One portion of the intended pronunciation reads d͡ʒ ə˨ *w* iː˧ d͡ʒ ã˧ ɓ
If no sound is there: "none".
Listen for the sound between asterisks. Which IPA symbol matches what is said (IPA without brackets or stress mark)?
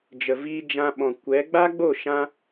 v